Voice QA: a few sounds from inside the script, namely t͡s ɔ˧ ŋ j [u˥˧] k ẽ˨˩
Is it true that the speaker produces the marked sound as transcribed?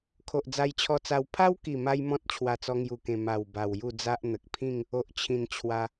no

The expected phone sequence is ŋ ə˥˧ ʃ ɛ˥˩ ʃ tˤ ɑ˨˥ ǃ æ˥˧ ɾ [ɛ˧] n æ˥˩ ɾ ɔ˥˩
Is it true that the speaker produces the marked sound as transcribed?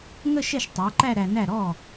no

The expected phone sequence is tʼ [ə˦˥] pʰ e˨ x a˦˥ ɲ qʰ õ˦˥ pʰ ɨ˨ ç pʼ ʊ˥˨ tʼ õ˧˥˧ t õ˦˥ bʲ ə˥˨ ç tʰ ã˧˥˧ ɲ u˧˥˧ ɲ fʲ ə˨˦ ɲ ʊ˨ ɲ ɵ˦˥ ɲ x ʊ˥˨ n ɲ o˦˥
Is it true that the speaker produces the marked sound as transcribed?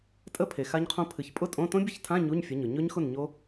yes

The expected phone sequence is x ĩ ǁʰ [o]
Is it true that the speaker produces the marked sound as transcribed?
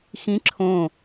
no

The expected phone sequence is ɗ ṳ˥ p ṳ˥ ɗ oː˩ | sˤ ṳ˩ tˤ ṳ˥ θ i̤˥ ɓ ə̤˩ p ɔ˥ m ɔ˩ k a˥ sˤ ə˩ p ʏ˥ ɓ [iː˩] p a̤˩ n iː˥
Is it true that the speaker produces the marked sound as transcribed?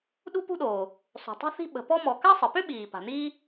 yes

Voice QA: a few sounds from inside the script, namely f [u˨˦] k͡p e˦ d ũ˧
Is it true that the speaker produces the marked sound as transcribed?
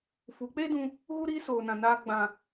yes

